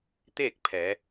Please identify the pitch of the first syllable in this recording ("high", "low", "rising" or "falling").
falling